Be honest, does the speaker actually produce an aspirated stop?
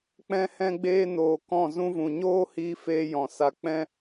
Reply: no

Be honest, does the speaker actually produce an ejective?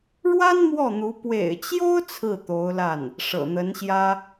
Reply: no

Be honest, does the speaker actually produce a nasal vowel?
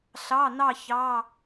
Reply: no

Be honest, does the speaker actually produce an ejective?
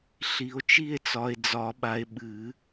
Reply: no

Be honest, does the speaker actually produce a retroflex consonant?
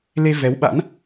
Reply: no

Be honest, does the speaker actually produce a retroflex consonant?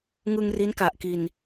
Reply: no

